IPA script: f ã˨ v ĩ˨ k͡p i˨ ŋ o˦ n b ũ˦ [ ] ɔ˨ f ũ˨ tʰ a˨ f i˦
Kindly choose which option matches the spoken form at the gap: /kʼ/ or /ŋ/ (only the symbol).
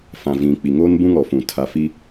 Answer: ŋ